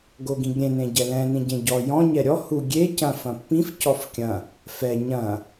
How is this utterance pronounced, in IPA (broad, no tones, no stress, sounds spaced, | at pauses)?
ɡ o ɡ ĩ ɡ ɾʲ ẽ n ẽ ɟ ɛ l ɛ̃ n ĩ ɟ ẽ ɟ ɔ j ɔ̃ ɲ ɛ ɾʲ ɔ h u ɡʲ e c ɐ̃ f ɐ̃ pː ĩ f c ɔ f kʲ ɐ̃ | f ɛ ɲ ɐ̃